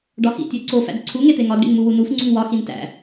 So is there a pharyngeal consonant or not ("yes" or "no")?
no